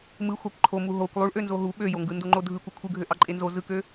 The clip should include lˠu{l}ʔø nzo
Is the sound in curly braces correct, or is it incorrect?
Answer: incorrect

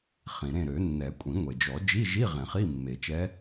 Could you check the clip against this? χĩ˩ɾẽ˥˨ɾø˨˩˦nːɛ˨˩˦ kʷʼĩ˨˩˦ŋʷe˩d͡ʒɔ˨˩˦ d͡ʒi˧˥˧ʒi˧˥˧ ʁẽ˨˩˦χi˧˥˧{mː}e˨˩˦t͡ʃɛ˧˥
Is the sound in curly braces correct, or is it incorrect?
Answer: correct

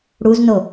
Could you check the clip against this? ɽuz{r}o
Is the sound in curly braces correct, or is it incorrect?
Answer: incorrect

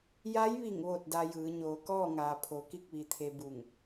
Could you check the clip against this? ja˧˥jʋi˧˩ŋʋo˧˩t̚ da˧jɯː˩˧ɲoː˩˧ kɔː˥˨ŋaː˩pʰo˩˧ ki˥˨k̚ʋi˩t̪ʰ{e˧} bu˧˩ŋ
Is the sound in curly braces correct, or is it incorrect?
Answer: correct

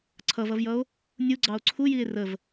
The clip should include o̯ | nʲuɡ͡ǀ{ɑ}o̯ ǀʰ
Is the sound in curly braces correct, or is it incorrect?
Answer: correct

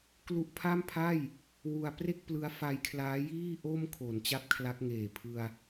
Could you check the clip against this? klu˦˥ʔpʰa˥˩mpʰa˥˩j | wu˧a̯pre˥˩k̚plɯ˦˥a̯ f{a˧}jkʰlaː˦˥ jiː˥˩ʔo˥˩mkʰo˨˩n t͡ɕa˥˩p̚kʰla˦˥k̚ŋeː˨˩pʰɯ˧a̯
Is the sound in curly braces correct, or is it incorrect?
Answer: correct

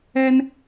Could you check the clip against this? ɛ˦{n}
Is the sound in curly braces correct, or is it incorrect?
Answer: correct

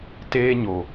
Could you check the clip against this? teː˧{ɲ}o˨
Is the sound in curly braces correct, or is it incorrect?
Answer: correct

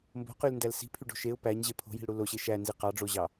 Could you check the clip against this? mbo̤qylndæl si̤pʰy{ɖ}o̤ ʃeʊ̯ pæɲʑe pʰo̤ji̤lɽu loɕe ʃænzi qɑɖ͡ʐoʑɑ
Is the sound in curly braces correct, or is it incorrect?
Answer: correct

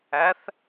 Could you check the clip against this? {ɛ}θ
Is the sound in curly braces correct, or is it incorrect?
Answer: incorrect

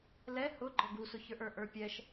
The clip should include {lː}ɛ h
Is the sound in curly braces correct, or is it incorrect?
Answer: incorrect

